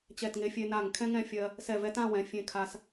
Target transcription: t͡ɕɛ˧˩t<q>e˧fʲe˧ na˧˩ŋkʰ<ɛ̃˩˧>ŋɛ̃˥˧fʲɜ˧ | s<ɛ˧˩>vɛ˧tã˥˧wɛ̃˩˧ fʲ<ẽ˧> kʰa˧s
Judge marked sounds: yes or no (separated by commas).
no, no, yes, yes